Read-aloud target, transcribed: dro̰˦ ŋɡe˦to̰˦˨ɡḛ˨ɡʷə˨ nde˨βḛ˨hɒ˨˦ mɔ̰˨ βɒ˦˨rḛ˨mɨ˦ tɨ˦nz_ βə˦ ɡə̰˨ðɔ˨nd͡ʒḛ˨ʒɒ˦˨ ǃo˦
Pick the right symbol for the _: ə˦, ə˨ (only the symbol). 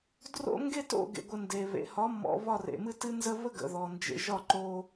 ə˦